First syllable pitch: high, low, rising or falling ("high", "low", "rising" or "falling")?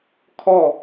falling